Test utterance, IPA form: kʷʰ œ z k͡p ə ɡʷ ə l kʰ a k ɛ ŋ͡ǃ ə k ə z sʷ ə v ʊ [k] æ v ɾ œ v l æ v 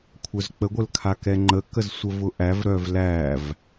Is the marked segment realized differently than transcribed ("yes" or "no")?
yes